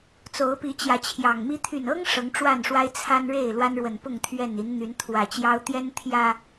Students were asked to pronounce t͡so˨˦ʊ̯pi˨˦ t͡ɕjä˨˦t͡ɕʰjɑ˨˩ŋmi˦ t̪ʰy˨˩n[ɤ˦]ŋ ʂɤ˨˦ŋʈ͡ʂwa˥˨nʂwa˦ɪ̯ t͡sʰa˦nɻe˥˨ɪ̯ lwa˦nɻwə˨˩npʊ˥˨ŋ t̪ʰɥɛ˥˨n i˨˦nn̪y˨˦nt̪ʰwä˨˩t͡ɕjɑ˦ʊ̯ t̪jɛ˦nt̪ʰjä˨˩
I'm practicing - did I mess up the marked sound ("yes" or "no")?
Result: no